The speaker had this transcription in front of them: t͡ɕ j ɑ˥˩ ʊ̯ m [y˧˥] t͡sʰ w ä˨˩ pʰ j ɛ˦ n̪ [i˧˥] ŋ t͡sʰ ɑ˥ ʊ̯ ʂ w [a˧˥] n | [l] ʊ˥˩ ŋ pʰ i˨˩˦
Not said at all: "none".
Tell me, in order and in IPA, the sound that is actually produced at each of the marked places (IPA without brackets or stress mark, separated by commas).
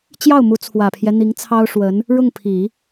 u˧˥, i˧˥, ə˧˥, ɻ